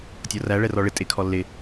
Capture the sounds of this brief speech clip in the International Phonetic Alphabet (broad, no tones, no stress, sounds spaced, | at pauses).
tʲ ɔ r æ ɭ ɛ r ɔ ɭ ɪ tʼ ɪ kʰ ɔ lː ɪ